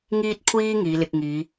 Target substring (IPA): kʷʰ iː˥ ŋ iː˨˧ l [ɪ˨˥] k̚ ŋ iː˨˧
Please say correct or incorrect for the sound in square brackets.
incorrect